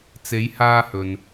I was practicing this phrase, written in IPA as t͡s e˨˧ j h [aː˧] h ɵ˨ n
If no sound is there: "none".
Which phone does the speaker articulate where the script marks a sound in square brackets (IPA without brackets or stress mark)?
aː˧